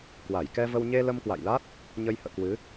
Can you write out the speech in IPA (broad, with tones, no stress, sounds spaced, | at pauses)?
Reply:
k w a˧˩ j k ɛ˧ v ə˧ w ɲ e˧ l ə˧ m k w a̰˧˨ j l a˦˥ t̚ | ɲ ə˧ j h ə̰ː˧˨ k w ɨ˨˦